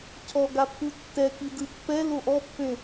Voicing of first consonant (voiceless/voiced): voiceless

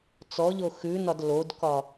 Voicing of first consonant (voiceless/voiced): voiceless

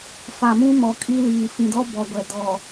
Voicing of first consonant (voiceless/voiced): voiceless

